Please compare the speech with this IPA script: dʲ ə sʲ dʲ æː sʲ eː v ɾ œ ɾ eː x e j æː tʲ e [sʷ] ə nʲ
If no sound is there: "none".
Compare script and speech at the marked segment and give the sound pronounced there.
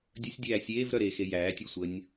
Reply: sʷ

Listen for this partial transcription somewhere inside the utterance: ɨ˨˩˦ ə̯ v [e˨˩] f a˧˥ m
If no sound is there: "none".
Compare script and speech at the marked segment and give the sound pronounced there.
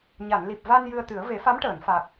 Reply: e˨˩˦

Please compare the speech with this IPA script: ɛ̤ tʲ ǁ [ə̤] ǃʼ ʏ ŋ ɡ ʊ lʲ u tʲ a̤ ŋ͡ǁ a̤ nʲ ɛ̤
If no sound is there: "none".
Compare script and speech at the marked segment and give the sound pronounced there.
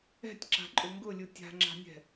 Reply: a̤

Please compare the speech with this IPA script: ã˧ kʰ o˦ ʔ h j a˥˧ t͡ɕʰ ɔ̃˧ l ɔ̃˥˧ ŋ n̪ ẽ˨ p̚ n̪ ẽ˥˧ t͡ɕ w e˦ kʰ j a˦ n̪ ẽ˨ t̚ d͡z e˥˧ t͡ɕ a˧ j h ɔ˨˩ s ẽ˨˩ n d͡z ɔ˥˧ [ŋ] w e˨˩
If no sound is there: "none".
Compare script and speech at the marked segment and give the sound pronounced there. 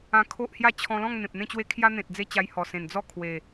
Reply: kʰ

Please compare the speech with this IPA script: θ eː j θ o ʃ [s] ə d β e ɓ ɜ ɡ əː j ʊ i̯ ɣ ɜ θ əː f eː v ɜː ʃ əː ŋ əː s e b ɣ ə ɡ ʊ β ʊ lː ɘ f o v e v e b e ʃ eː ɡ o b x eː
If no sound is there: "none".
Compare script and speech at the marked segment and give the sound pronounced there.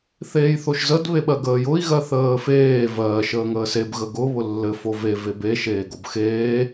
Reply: z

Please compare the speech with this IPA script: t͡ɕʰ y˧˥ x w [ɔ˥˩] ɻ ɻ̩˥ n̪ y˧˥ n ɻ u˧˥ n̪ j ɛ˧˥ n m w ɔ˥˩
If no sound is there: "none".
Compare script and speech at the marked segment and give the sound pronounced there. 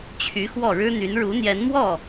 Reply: ɔ˥˩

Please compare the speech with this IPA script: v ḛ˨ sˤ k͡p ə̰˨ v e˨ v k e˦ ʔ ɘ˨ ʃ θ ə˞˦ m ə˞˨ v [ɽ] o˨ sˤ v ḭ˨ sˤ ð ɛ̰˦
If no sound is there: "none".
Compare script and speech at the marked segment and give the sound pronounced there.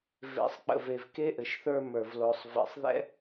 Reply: l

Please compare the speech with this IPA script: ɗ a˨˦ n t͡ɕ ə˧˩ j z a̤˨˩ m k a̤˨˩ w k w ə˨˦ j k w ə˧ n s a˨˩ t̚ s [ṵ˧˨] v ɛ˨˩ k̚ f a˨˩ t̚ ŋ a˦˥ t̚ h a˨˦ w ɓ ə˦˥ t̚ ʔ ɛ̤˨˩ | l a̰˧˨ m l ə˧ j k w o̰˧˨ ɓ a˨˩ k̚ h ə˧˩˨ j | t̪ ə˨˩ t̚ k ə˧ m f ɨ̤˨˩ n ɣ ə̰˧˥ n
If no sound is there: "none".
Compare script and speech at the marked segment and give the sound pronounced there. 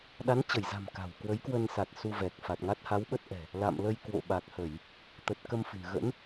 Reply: u˧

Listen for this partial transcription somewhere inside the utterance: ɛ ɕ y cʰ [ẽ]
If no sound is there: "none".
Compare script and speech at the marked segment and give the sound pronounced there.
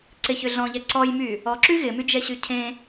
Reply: ẽ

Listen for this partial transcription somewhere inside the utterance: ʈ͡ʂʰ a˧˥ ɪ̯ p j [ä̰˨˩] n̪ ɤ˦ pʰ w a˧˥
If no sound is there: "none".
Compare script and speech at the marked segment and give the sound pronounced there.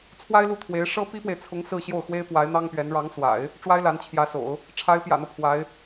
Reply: ä̰˨˩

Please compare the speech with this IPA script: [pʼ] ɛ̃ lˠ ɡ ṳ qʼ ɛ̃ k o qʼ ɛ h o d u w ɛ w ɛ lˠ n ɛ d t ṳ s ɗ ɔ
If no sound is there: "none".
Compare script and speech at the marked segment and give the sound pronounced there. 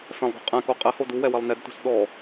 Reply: f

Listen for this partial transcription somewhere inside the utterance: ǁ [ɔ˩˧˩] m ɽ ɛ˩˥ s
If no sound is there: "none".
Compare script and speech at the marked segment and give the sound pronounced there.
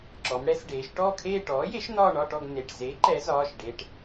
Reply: ɔ˩˧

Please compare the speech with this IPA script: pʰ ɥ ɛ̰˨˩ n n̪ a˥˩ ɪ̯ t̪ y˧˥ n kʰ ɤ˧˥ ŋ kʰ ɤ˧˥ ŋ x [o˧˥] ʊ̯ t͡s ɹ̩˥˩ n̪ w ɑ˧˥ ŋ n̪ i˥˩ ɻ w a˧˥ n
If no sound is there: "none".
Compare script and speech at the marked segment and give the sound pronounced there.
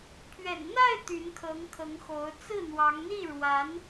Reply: o˧˥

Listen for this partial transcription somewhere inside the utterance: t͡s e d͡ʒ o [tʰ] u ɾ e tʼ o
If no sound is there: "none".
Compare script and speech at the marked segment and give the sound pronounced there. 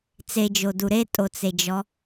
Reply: d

